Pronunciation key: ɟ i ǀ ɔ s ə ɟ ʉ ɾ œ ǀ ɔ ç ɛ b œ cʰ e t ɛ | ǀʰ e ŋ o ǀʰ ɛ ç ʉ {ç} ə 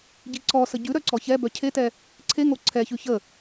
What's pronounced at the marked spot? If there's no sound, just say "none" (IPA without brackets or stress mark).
ç